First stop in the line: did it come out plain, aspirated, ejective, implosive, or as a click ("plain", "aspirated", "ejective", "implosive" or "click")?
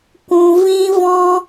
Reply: plain